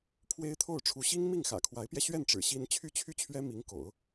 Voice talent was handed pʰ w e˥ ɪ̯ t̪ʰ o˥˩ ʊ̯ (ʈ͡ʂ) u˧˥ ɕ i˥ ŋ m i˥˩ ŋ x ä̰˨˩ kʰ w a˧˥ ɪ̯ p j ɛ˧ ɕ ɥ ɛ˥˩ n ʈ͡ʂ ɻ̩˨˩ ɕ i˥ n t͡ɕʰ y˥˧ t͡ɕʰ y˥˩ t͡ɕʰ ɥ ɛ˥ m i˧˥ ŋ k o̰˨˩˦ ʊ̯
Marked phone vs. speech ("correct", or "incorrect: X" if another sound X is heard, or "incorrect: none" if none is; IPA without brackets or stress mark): incorrect: ʈ͡ʂʰ